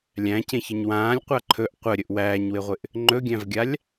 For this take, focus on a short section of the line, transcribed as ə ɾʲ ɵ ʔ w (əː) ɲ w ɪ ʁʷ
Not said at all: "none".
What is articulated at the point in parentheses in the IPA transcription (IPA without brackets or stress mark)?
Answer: æː